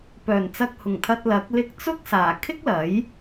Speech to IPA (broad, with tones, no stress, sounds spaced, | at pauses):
p œː˨˩ n t͡s ɐ˧ k̚ h ʊ˨˩ ŋ t̪ʰ ɐ˧ t̚ l ɐ˨˥ k̚ l ɪ˧ k̚ t͡s ʊ˥ k̚ s aː˨˩ kʰ ɪ˥ k̚ l ɐ˨˥ j